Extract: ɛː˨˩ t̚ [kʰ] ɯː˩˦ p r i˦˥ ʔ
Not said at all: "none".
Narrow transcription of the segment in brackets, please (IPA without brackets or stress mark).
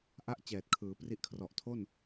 kʰ